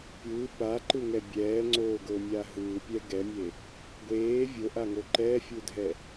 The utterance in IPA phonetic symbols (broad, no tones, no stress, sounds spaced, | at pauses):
pʲ ɯː p a ǃ ɯ ŋ ɛ bʲ ɛː ŋ͡ǀ oː ɡ o mʲ a ɦ ɯː pʲ ɛ ɡ ɛ mʲ e | ɡʷ eː vʲ o ʔ a ŋ o ǃ ɛː fʲ u dʱ ɛ